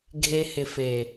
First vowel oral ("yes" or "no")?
yes